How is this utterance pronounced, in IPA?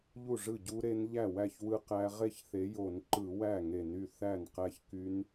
ʎ u˥˩ ʐ ɯ˥˩ ɟ u˦˥ ɾ e˦˥ n ʎ æ˥˩ w æ˥˩ ç w ɯ˦˥ q æ˦˥ ʁ e˥˩ ç θ e˨˦ j o˧˩˧ n ǃ ɯ˧˩˧ w æ˥˩ ŋ e˧˩˧ n y˥˩ θ æ˥˩ n q æ˦˥ ç k y˦˥ n

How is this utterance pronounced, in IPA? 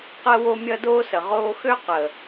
q əː˦ w o˦ mʲ ʌ˦ d oː˦ s ə˨ ʁ oː˧ x ø˦ q ə˨

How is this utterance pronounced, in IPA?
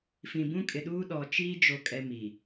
f ĩ˨ b ũ˦ kʼ ɪ˨ ɗ uː˦ ɗ ɔ˨ t͡ʃ iː˦ d͡ʒ o˨ kʼ ɛ˦ m i˨

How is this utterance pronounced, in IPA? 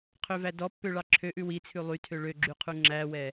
qʰ ø v æ d ɔ pː ø ɭ ɑ ǁʰ ø ʔ ʉ w i t͡sʰ ʉ lˠ y tʰ ø ɭ ø ɡ͡ǁ y qʰ u ŋ͡ǁ æ w ɛ

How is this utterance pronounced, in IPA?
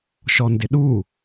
ʃ ɔ n d ɪ ɗ u

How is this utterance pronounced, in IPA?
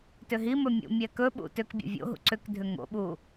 t ʏ ɦ i m ɵ mʲ ṵ mʲ ɛ k ɵ ɓ ṵ t ʏ k bʲ ṵ vʲ o̰ ɦ ṵ ǀ ʏ k dʱ ʏ ŋ o̰ ɓ u

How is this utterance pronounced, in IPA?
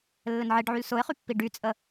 lː ɘ n ʕ e ɖ ʕ y l s ʊ ɪ̯ χ y pː i ɖ y t͡sʼ ə

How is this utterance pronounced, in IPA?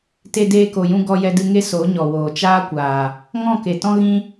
t e˧ d eː˧ k o˨ j ũ˧ ɡ ɔ˧ j ɛ˧ d ɨ˧ ŋ e˦ s o˨˦ ɲ ɔ˨ w oː˨ t͡ʃ aː˦ kʷ aː˨ | ŋ ɔ̃˦˨ k e˨ t ɔ̃˦ ɣ ĩ˦

